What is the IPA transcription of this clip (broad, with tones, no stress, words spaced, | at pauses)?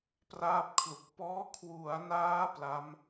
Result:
praː˥˩p̚kʰlu˨˩k̚ pɔː˦˥kʰwu˩˦a̯naː˦˥ pla˦˥m